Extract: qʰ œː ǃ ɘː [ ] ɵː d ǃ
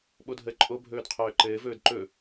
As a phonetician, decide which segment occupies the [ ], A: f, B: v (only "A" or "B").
B